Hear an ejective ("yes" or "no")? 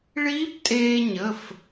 yes